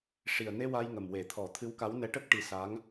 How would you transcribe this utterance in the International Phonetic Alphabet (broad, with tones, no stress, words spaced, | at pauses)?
ʂi˨˩ə̯ne˧ wa˧jŋə˨˩mwe˨˩˦t̪ʰɔ˨˩˦ t̪ʰɨ˧˥wka˧˥wnɛ˧˥ ʈə˦˥k̚ ʈi˧˥ sa˧˥ŋ